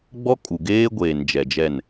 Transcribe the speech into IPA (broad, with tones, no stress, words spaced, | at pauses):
ɡ͡bɔ˦ kʼu˨ ɡeː˦ɡʷeː˨n d͡ʒɛ˨d͡ʒɛ˦˨n